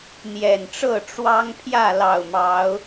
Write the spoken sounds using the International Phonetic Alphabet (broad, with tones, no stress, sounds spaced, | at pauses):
n̪ j ɛ˨˩ n ʈ͡ʂ ɤ˥˨ ʈ͡ʂ w ɑ˦ ŋ pʰ j ä˥˨ l ɑ˨˩ ʊ̯ m ɑ˨˦ ʊ̯